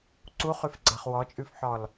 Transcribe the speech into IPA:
ǀ u χ ʉ f ɡ͡ǀ a χ w ɔ t͡ʃʼ ʉ f ħ ɔ l

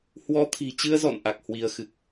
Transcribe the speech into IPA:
h w ɔ˨˦ t̪ʰ i̤˨˩ t͡ɕ ɨ˧ ə̯ z ɔ̰˧˨ n ʔ a˨˩ k̚ h w i˨˦ ə̯ x ɨ˨˩ k̚

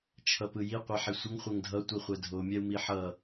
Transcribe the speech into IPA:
t͡ʃʰ ʌ p ɯ j i qʷ ɛ ħ i sʷ ʌ ŋ χʷ ɛ ŋ dʱ ʌ tʷ i χʷ ɛ dʱ o mʲ ɛ u̯ m i ħ ʌ

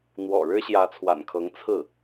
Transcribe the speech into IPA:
n̪ w ɔ̰˨˩ ɻ ɻ̩˥ ɕ j ä˧˥ t͡sʰ w a̰˨˩ n kʰ ɤ˧˥ ŋ t͡sʰ ɹ̩˥˩

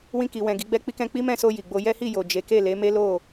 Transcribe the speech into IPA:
w ĩ˧ k i˨ w ɛ̃˨ ɡ i˨˦ ɡ͡b ɛ˦ k͡p i˧ k ɛ̃˧ k͡p i˦ m ɛ̃˦˨ s o˧ j i˨ ɡ͡b o˧ j ɛ˦ h i˦˨ j o˨ d͡ʒ e˨˦ k e˦˨ l e˨˦ m e˦ l o˦˨

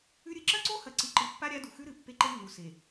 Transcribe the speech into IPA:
ʉ˦ ɾʲ ɨ˦ ǁ ɐ˦ ǀ o˦ h ɐ˨ ǀ i˨ ǃ ɨ˨ pː a˦ ɾʲ a˦ d u˨ x ʉ˦ ɾ ɨ˨ pː e˦ ǃ e˦ nː u˨ s e˨

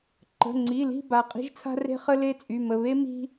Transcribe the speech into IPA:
ǃ ə̤˩˧˩ ŋ͡ǀ i˩˧˩ l i̤˦˨ b a˩˧˩ qʼ i̤˥ ʒ t͡sʰ a̤˥ r e̤˥ χ ə˥ l e˥ t͡sʼ y˩˧˩ m ə˩˧˩ β e˥ m i̤˥

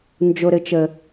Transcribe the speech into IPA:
n d͡ʒ o˨ ɾ ɘ˨ t͡ʃ ə˨

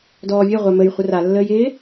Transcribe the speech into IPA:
d ɔː vʲ ɛ ʁʷ a m ə j χʷ ə r a lː əː j ɪː

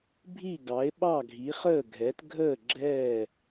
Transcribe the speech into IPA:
bʱ i˦˨ ɡ ɑ˨˦ e̯ ɓ ɑ˦˨ ɡʱ i˨˦ χ əː˦˨ ɡʱ ɛ˨˦ t ɡʱ əː˦˨ ɡ͡ǁ ɛː˦˨

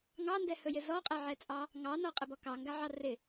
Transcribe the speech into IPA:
ŋ ɑ n d ɛ h ɵ j ɪ z ɔ qʼ ɛ ʕ ɛ t͡sʼ ɑ | ŋ ɑ n ɔ qʼ ɪ b ɔ k ɑ ŋ ɡ a ʕ ɑ r ɪ

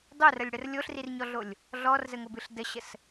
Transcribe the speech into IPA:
dˤ o r ə lʲ ɽ ə r lʲ o ɬ r i r ɲ ɔ ɮ o lʲ | ɮ ɔ r z ə ŋ o b ɨ ɬ d ə ɕ ə s

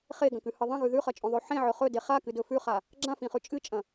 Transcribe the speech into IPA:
χ e ɡ ɐ̃ k ʉ h ɨ ðˤ ɐ̃ ɣ ʉ ð ʉ χ ɐ t͡ʃʼ õ ðˤ ʉ ħ ẽ ʕ ɵ χ ɵ d e χ a k ɨ d ɵ f ʉ χ a | ɡ͡ǁ ã f ĩ χ ʉ t͡ʃʼ ɨ t͡ʃʼ ɐ̃

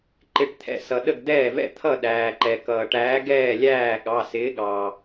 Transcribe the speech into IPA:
ǃ ɪ˩˧˩ ʈ t̪ʰ ɛ̰˩ s ʌ˩ ɗ ə˥˩ ɡ d̪ ɛː˥˩ v ɛ̰˥˩ t̪ʰ ʌ˥˩ ɗ æː˩ ǃ ɛ˩ k ʌː˩ ʈ æː˨˥ ɡ ɛː˥˩ lʲ æː˥˩ ɠ ɑ˩˧˩ s ɪː˨˥ ɠ ɑː˩

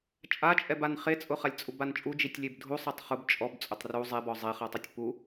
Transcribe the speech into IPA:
t͡ʃʼ a t͡ʃʼ ɛ b a n χ e t͡sʼ ʊ χ a lʲ t͡sʼ u b a n t͡ʃʼ u d͡ʒ i tʲ lʲ e b dʱ u sˤ ɛ tˤ χ ʊ b t͡ʃʼ ɔ b t͡sʼ ʊ tˤ r u zˤ e b ɔ zˤ e χ a tˤ ʊ tʲ p u

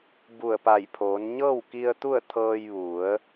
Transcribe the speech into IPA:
b u˧˩ ə̯ p a˧˩ j pʰ oː˩˧ n ɲ ɤː˥˨ w k i˧ ə̯ t̪ u˥˨ ə̯ t̪ʰ ɤː˧ j ʋ u˩˧ ə̯

